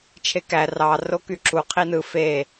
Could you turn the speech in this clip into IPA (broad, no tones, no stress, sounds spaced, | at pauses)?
t͡ʃʰ e k æ r ɑ r o k y ǁ u qʰ i n ɯ f e